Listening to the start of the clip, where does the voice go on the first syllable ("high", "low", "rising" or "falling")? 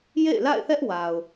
falling